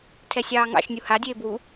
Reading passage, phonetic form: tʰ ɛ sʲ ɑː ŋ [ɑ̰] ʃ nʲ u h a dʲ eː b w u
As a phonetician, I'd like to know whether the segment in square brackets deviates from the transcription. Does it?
no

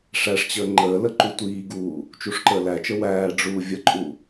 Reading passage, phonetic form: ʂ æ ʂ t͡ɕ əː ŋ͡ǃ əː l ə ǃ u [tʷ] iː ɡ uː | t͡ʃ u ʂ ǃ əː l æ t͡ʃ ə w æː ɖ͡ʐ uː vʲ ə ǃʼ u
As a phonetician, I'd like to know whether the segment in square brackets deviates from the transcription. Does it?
no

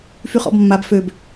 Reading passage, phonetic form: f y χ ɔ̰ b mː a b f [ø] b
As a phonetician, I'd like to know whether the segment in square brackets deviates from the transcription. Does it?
no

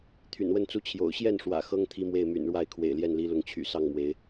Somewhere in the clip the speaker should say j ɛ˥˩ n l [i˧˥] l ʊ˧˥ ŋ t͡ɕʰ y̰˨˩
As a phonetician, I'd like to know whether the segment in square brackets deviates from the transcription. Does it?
no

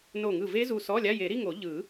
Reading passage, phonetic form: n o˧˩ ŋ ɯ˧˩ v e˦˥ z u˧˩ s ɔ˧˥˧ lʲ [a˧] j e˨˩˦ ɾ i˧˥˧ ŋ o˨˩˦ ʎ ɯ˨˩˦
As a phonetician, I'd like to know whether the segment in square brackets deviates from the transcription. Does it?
yes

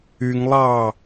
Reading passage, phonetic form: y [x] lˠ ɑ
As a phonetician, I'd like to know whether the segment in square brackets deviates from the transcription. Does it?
yes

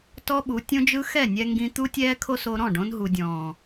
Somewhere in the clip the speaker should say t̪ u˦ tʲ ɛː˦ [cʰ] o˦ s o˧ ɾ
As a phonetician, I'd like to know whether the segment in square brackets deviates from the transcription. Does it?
yes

